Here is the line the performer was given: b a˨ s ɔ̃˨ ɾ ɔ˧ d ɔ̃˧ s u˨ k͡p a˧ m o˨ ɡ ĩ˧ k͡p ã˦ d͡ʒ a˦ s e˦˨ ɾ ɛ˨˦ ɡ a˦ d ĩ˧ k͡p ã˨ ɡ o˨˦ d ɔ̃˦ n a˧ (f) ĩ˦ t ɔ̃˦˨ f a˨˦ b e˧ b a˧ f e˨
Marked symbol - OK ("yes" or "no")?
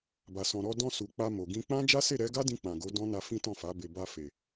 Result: yes